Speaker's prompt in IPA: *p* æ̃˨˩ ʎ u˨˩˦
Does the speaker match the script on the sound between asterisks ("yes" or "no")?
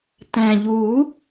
no